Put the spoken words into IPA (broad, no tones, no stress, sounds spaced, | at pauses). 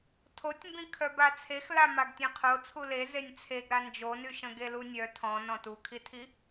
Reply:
tʰ o tʲ m b ĩ kʰ œ b a t͡sʰ e x l a m a ɡ tʲ ẽ qʰ o t͡sʰ u l e z e nʲ t͡sʰ e ɡ ɾ a n d͡ʒ o n y ʃ ə̃ ɡ e l u nʲ œ tʰ ɔ̃ n ɔ̃ t u kʰ i tʰ i